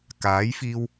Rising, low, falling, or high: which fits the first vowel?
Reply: rising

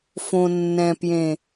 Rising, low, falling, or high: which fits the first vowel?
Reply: low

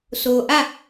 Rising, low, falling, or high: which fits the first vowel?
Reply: low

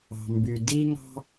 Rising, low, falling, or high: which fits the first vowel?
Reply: low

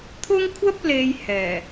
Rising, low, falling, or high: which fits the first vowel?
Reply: high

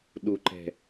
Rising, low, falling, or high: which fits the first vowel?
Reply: high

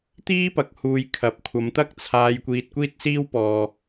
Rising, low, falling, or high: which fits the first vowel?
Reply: high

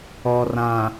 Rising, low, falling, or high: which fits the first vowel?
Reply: low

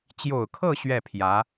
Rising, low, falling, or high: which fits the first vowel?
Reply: low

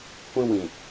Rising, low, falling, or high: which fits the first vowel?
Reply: high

